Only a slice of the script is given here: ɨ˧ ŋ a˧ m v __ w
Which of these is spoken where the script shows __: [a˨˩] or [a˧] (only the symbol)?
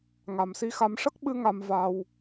a˧